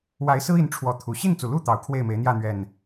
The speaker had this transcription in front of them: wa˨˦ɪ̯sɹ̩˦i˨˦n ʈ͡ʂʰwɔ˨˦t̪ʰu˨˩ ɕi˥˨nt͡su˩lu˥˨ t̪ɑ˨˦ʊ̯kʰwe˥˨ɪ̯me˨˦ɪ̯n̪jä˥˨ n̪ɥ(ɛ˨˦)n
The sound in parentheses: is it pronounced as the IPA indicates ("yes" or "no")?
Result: no